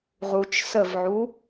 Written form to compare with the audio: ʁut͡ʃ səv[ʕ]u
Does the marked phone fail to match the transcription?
no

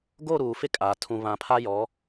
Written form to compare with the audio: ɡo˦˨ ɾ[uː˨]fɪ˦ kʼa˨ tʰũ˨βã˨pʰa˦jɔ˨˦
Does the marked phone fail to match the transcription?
no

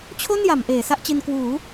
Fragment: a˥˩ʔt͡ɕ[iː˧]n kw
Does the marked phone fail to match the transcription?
yes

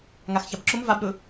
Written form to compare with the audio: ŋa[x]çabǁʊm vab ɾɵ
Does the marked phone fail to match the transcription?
no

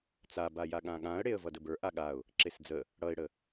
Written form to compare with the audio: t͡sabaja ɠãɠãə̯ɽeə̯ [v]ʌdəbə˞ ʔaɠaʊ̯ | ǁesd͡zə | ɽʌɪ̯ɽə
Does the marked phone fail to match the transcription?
no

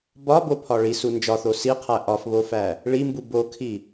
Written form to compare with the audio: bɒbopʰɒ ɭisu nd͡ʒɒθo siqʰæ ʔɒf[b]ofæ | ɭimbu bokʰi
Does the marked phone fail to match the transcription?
yes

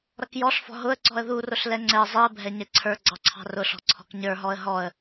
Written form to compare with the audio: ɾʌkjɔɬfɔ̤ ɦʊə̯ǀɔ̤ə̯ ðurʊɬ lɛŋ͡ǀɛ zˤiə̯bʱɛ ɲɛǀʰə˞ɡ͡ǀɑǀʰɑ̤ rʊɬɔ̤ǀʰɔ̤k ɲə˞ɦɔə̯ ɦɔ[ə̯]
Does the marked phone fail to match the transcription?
no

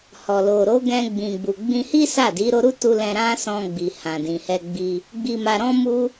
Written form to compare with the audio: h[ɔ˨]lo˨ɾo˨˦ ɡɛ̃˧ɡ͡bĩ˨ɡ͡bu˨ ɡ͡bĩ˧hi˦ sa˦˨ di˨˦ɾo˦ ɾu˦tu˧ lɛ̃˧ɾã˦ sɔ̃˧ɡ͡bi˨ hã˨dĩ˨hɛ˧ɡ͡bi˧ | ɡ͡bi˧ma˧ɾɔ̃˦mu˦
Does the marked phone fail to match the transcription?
no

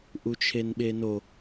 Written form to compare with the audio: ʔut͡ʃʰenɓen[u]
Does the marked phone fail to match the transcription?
yes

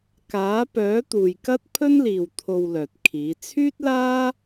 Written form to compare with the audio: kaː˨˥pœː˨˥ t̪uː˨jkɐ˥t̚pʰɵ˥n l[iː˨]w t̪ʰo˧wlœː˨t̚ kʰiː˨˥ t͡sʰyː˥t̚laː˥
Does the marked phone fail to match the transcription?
no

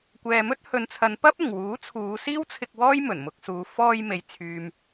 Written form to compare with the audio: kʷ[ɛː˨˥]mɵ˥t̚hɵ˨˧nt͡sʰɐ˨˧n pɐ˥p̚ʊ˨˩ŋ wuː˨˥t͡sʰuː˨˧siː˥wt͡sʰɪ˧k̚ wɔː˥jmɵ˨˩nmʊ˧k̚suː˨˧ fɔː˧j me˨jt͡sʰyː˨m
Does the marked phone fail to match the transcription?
yes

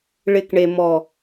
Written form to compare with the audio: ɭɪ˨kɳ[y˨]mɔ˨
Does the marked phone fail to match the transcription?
yes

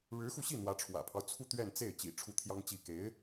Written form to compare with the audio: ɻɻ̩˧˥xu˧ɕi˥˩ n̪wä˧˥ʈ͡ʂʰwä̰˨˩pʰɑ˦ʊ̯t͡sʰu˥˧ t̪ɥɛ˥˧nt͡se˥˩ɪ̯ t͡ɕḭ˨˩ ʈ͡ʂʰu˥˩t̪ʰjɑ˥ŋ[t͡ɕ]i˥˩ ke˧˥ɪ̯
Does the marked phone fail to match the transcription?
no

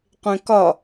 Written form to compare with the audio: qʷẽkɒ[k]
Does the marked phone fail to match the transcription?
yes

